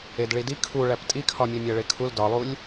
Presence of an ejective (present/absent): present